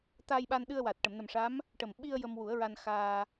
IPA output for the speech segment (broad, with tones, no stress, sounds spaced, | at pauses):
t̪ a˧ j ɓ a˧ n ɗ ɨ˧ ə̯ w a˨˩ t̚ ʈ ə˨˩˨ m n ə˨˩ m ʂ a˧˥ m | ʈ ə˨˩ m ɓ i˧ ə̯ j ə˧ m w u˨˩˦ ə̯ ɹ a˧ n x aː˧